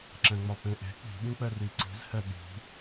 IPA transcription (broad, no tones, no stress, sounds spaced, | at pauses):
ǁ ɛ̃ ŋ͡m ɒ p ẽ ʔ e̤ k͡p i̤ ɓ ĩ k͡p ɛ r i ǀ i̤ z h ɛ ɗ i̤